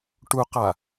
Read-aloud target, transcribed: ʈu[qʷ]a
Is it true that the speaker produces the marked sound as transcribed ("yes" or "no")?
no